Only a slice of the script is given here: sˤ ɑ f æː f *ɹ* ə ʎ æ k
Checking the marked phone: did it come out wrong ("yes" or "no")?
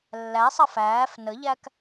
yes